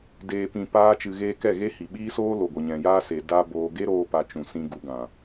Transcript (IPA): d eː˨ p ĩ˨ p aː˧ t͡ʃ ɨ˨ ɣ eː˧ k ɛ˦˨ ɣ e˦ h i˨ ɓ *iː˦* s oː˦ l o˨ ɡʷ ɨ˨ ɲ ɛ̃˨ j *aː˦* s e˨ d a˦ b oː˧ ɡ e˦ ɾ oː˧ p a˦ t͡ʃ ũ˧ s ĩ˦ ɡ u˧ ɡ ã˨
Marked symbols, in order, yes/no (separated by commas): yes, yes